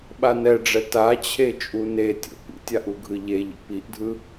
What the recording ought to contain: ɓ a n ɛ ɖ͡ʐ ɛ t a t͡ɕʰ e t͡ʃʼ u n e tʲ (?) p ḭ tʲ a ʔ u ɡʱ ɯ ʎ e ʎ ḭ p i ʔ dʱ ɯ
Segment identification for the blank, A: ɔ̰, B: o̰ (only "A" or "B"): B